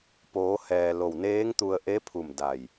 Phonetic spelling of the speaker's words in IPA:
poː˩˧hɛː˩ lo˧˩wneː˧˥ŋt̪u˧ə̯ ʔe˧˥pʰu˧˩m da˧˩j

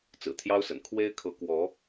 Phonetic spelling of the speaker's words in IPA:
t͡sɹ̩˨˩t̪ʰjɑ˥ʊ̯sə̰˨˩n kʰwe˥ɪ̯kʰɤ˧˥kwɔ˧˥

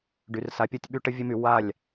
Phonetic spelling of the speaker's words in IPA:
ɖy˨rsa˧pʲo˦tʲɓy˦ ʈə˦vʲə˦my˧ wa˦˨lʲ

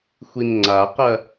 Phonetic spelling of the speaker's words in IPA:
xʷinŋ͡ǀaqɐ

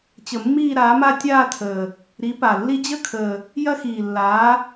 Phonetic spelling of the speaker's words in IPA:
t͡ɕə˨˩mːiː˥˧ɾaː˨˥ma˥˧ tʲaː˥˧tʰəː˨˩ | ɾi˨˥pa˨˩lːi˥ d͡ʑə˥˧kʰəː˨˩ | jɐ˥xiː˨˩lːaː˨˥

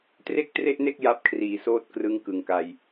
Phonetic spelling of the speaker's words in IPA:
tre˥˩k̚tre˥˩ʔne˥˩k̚ ja˦˥p̚kʰriː˨˩soː˦˥t̚ krɯ˦˥ŋkɯ˨˩ŋka˧j

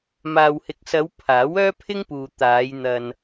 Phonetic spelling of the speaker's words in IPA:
maː˨whɪ˨k̚sɐ˨˧w pʰaː˨˥wœː˥pʰɪ˥ŋpuː˨ t̪aː˨˧jn̪ɐ˧n

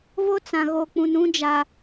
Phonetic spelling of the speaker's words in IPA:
vo˦ t͡sã˨ ɣo˨ k͡pũ˨nũ˦d͡ʒa˨

